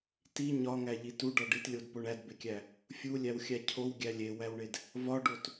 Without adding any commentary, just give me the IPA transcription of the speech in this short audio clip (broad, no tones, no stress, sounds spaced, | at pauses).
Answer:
t i ɲ ɒ ŋ æ ʎ i t u ɖ ɒ ɖ i t lʲ o d p o ɳ æ d b e kʲ æ | fʲ u lʲ æ w xʲ æ cʰ o w ɡʲ æ lʲ e w æ w ɳ e d | v ɒ ɖ o t